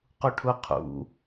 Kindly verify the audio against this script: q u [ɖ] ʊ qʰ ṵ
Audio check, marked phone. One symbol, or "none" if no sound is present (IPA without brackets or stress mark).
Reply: ʈʰ